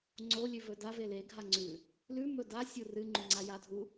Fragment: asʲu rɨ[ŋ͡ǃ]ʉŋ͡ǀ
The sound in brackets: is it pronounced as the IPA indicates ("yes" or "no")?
yes